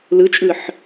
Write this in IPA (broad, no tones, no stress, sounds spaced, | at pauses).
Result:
l ɯ t͡ʃʼ ɯ ħ